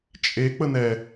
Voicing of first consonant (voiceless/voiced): voiceless